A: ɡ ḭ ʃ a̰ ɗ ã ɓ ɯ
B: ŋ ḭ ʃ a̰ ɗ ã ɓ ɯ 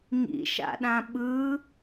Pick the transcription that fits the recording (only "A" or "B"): B